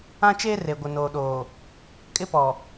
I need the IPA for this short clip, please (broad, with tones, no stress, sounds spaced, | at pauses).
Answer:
ã˦ t͡ʃ eː˦ r e˨ ɡʷ ɪ˨ n oː˨ ɗ oː˨ | kʼ ɪ˦ p ɔ˨